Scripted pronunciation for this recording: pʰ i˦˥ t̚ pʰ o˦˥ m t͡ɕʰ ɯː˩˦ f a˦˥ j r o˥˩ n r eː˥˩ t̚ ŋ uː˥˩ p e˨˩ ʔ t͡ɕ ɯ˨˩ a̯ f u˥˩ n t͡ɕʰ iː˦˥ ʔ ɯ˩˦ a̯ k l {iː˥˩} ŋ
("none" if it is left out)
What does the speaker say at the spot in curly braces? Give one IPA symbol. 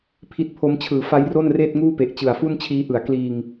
iː˧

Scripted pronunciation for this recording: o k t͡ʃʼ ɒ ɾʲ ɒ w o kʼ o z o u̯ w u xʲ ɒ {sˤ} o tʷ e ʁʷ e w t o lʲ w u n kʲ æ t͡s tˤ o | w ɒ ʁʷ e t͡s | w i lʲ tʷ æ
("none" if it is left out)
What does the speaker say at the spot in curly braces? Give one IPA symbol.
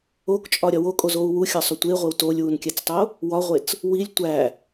sˤ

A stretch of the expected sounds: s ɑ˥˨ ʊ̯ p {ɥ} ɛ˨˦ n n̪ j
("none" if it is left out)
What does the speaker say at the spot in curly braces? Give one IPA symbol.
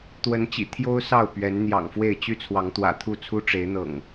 ɥ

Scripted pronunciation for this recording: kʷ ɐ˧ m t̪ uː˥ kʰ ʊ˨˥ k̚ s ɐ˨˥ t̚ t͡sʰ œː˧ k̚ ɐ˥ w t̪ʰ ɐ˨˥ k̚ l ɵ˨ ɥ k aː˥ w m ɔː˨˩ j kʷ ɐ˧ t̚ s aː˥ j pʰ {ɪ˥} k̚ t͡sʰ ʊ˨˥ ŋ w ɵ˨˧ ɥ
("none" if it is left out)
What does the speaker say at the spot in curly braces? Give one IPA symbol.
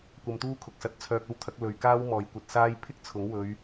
ɪ˥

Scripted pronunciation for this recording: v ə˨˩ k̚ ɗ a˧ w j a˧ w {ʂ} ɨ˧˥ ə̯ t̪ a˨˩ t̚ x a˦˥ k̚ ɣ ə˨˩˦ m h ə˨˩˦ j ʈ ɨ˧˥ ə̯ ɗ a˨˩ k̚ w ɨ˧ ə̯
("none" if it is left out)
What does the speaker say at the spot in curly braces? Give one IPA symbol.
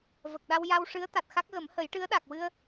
ʂ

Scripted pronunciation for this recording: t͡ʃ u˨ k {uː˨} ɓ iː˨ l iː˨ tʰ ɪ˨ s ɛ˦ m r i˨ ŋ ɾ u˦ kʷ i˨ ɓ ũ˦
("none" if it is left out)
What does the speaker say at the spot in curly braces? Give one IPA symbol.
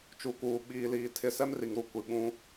uː˨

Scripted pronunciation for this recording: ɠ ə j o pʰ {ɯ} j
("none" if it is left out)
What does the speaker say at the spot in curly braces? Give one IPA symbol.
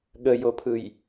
ɯ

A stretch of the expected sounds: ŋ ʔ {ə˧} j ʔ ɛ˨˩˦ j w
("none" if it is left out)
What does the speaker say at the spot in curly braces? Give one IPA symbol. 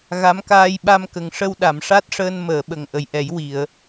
ə˨˩˨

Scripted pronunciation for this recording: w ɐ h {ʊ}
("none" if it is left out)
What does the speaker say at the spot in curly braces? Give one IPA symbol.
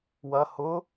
ʊ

